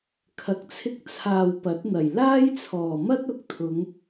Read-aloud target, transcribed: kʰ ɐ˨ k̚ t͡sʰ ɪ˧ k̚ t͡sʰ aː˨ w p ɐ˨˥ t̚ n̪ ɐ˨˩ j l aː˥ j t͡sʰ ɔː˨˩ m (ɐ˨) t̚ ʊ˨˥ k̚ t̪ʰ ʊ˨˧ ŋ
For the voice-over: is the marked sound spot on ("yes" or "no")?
no